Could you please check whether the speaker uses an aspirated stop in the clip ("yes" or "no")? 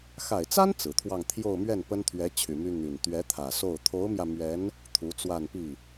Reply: yes